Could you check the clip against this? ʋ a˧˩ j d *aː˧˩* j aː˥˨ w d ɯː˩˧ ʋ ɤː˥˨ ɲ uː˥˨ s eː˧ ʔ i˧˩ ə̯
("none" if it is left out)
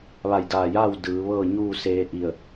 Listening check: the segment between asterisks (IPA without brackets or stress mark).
aː˧˩